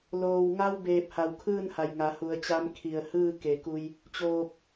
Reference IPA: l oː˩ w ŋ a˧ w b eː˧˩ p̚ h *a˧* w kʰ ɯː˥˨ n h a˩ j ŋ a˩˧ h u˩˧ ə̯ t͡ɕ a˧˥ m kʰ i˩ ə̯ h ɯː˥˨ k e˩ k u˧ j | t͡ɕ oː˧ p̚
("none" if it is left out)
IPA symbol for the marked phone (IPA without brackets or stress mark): a˩